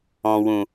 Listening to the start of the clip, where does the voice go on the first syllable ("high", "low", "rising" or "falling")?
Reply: low